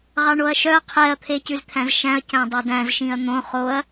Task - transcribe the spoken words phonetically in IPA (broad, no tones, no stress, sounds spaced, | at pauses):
ʁ ɑ ɳ o ɐ̯ ʃ œ ɐ̯ qʰ ɛ ɐ̯ t̪ʰ e c ʉ z t̪ʰ æ̃ z ʃ æ̃ ɐ̯ c æ̃ dˤ ɑ d æ̃ z ʃ ĩ ɐ̯ n̪ õ χ o ɐ̯